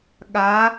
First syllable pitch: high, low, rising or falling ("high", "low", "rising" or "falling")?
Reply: rising